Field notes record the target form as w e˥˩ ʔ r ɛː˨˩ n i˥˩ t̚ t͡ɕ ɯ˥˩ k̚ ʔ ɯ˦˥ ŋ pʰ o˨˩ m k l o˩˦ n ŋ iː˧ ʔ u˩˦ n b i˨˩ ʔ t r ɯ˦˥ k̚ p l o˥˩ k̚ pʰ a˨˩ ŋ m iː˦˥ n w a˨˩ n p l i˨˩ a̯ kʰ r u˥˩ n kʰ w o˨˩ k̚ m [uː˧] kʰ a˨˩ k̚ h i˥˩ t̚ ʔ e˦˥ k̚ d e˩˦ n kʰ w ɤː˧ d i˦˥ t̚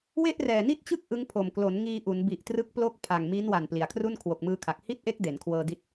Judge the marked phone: incorrect: ɯː˧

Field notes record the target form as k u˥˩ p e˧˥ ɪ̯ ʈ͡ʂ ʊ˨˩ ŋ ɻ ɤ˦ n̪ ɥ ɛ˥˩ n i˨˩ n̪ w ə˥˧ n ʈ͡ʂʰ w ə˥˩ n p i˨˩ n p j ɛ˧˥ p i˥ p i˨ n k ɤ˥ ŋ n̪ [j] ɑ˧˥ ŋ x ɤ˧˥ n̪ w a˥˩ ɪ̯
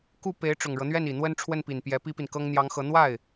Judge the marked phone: correct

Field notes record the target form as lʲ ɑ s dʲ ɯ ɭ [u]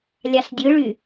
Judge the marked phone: incorrect: y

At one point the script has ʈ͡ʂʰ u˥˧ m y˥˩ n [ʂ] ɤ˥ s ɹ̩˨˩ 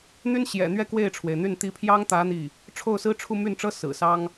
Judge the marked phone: incorrect: ʈ͡ʂ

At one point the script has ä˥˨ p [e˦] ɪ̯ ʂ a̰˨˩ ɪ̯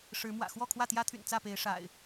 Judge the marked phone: incorrect: e˨˦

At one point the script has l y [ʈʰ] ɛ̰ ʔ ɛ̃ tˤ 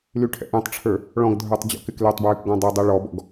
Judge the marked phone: correct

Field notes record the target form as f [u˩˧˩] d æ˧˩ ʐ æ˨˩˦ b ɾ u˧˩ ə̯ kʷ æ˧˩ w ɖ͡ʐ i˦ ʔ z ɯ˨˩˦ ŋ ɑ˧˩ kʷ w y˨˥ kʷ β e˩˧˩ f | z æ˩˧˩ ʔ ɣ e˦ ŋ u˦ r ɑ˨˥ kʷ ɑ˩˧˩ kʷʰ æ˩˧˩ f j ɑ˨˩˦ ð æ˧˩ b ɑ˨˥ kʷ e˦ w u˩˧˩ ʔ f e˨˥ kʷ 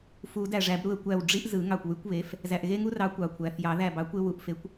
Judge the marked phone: incorrect: u˨˩˦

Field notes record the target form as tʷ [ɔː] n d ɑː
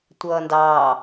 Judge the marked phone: incorrect: ʌː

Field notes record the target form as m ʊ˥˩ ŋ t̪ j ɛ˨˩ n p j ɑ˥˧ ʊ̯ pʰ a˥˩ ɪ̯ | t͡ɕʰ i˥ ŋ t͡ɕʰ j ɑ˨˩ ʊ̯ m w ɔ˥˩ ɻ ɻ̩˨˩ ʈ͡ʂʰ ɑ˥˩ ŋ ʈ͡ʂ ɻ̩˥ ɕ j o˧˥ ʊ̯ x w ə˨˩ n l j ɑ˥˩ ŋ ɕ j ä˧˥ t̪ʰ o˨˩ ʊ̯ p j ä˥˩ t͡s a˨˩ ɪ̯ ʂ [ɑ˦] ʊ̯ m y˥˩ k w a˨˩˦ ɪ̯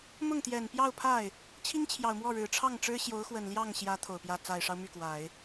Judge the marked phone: correct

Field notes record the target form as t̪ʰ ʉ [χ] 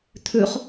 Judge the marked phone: correct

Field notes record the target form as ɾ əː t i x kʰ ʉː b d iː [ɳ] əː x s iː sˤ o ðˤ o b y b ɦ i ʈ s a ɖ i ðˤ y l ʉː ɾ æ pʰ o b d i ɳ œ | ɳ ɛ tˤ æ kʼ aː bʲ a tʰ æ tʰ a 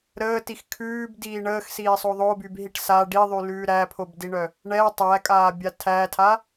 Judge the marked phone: correct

